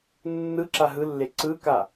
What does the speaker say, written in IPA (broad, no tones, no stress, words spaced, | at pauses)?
nːɯ ǁaɦɯlːe ǀɯka